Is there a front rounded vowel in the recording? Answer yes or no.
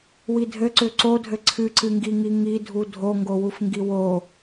yes